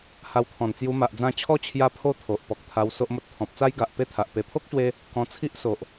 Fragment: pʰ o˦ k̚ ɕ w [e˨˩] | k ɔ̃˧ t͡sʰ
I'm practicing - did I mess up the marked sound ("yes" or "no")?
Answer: yes